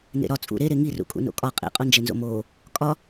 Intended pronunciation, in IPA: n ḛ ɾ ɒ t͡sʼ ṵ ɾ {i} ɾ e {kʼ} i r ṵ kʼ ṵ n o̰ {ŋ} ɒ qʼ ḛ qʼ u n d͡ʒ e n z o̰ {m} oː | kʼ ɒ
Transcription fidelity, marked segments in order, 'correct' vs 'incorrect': incorrect, incorrect, incorrect, correct

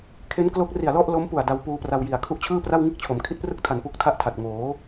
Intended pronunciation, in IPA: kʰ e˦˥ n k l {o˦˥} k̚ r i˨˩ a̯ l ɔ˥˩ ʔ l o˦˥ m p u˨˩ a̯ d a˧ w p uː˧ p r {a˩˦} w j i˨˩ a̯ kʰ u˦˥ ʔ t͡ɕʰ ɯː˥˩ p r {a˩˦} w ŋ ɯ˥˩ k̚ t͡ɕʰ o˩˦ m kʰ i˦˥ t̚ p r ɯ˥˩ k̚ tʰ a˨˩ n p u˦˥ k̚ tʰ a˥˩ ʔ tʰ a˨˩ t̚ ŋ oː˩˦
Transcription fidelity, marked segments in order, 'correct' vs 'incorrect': correct, incorrect, incorrect

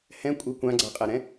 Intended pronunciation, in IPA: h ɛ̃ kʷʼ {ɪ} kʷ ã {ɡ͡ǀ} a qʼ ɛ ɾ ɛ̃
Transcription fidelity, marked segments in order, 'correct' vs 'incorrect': correct, correct

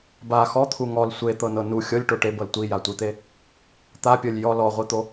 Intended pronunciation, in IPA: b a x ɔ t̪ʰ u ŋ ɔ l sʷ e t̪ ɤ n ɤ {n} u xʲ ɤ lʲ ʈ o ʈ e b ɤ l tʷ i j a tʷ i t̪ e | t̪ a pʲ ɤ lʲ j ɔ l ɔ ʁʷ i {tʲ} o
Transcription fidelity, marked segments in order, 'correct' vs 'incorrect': correct, incorrect

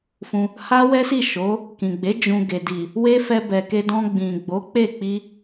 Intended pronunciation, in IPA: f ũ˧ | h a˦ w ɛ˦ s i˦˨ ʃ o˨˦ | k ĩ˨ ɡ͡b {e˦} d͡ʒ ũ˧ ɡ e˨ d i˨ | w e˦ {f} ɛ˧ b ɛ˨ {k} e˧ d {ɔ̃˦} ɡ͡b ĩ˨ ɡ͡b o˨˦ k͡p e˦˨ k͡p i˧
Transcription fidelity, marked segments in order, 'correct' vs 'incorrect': incorrect, correct, correct, incorrect

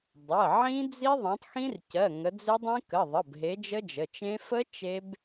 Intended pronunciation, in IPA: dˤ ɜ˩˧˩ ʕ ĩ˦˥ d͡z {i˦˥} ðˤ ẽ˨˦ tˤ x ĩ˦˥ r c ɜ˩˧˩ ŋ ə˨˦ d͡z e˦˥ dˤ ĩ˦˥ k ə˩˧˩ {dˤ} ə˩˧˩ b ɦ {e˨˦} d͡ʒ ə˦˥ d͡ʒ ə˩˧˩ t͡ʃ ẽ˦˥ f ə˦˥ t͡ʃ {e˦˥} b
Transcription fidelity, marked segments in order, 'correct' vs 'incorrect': correct, incorrect, correct, correct

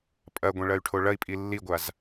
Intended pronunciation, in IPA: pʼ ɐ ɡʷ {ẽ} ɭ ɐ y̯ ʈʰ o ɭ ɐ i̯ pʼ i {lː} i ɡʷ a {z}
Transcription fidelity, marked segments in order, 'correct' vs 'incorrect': correct, correct, correct

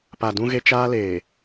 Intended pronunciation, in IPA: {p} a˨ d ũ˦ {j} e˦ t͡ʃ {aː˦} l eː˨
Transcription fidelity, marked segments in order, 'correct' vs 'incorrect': correct, incorrect, correct

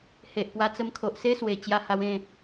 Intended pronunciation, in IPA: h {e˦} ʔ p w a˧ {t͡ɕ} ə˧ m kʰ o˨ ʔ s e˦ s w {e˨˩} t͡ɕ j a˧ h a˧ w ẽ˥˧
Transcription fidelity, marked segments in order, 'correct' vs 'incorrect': incorrect, incorrect, correct

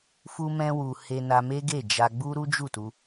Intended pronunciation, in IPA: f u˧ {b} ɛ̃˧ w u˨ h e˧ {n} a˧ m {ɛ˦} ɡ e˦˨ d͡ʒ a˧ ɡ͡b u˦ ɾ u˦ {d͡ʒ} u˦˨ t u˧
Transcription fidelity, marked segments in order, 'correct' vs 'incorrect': incorrect, correct, incorrect, correct

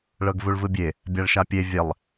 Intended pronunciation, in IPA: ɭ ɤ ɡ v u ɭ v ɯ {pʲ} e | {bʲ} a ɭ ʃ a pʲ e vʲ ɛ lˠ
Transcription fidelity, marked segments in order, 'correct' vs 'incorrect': incorrect, correct

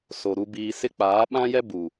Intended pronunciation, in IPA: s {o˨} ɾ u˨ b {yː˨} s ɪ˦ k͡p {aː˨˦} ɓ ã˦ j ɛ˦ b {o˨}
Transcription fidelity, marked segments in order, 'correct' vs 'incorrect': correct, incorrect, correct, incorrect

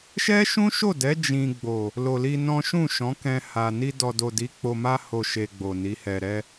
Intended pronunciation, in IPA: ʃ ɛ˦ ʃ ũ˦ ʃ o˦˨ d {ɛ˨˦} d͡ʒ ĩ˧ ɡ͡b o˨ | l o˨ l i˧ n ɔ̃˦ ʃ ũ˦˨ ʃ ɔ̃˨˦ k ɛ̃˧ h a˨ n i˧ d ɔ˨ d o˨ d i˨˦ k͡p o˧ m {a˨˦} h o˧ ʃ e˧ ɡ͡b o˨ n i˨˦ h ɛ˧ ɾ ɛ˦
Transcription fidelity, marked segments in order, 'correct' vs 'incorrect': correct, incorrect

